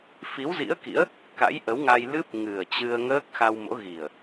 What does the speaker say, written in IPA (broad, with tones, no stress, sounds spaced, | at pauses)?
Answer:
f i˨˦ w z ḭ˧˥ ə̯ k ḭ˧˥ ə̯ | k a̰˧˥ j ʔ ə˨˦ w ŋ a˧ j l ɨ˦˥ p̚ ŋ ɨ˨˩ ə̯ t͡ɕ ɨ˧ ə̯ ŋ əː˦˥ k̚ x a˧ w m o̰˧˥ ɣ i˨˩ ə̯